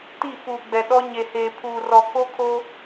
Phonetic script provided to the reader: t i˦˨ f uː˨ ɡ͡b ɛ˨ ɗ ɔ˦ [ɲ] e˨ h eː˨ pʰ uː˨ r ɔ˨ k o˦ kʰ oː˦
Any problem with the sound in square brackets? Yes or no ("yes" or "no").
no